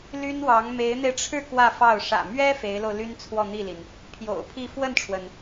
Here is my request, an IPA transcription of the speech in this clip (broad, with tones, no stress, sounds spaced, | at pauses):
l y˥ n w ɑ˧˥ ŋ m e˧˥ ɪ̯ n̪ e˧ ɪ̯ ʈ͡ʂʰ ɻ̩˥˧ k w ä˥˧ f ɑ˥˩ ʊ̯ ʂ ä̰˨˩ m ɥ ɛ˥ f e˧˥ ɪ̯ l o˧ ʊ̯ l y˥ n t͡sʰ w ɔ˥˧ n̪ i˥˩ l i˩ n | pʰ j o̰˨˩ ʊ̯ pʰ i˥˧ f w ə˥˩ n ʈ͡ʂʰ w ə˩ n